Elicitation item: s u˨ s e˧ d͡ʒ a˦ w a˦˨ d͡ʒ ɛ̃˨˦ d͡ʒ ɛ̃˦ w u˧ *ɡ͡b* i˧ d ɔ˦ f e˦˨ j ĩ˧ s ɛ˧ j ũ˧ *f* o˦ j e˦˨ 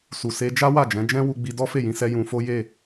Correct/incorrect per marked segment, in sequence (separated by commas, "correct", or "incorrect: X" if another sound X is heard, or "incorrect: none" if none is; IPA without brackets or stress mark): correct, correct